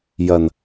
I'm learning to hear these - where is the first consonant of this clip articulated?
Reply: palate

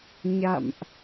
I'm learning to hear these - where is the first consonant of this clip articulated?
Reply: palate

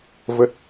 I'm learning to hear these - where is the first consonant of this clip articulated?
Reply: lips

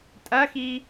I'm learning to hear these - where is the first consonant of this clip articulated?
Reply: tongue tip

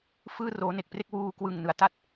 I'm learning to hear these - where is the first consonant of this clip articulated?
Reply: lips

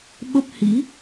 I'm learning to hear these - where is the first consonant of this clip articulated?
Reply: lips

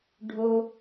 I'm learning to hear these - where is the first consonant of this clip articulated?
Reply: retroflex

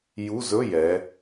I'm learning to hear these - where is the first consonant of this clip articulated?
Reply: palate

